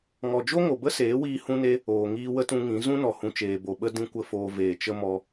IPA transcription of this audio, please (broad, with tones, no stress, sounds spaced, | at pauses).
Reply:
ŋ ɔ˨ d͡ʒ o˦ ŋ o˨ b ə˦ s eː˨˦ w iː˧ h ũ˦ n e˦ | oː˨ ŋ iː˧ w ə˦ t ũ˧ ŋ ĩ˨˦ z ũ˦ n ɔ˨ h ũ˨ t͡ʃ eː˨ b o˨ ɓ ə˦ d ĩ˦ kʷ ə˦ f oː˧ v eː˨ t͡ʃ ə˦ m ɔ˧